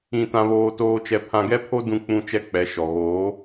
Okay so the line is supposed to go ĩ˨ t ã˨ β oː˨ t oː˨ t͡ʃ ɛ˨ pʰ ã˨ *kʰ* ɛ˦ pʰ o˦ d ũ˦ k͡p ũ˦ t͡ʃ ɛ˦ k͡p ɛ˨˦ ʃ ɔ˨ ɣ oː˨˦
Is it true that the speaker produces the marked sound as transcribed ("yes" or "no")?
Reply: no